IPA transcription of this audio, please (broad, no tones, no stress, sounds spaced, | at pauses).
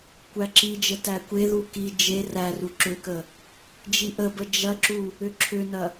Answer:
kʷ æ ǁ i d͡ʒ ə t æ kʷ e ð u k i d͡ʒ e r æ r u ǁ ʏ k ə | d͡ʒ i ʔ ə b ə d͡ʒ ɐ ǁ u | ʏ ǁʰ ʏ n ɐ